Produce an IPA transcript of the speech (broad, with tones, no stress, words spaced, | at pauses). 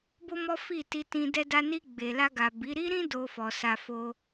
bo˦mɔ˦fi˦˨ti˧ tĩ˧dɛ˦ da˧ni˧ɡ͡be˨ la˧ɡa˨bi˨˦ ɾi˦ɾĩ˦ do˧fɔ˨ sa˧ fo˦